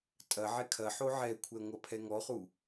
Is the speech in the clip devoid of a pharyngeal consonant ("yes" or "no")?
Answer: no